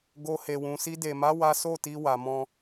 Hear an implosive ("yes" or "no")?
no